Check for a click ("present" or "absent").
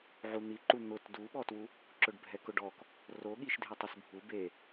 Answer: present